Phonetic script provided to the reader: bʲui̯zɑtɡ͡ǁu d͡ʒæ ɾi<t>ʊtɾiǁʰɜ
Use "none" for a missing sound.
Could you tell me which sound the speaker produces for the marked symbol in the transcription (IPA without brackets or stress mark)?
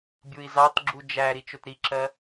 t͡ʃ